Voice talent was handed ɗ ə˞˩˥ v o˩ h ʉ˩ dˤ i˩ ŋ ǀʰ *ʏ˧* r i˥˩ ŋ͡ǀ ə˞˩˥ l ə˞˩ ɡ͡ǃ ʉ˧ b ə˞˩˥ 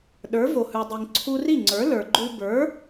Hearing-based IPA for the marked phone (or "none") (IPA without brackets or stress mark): u˧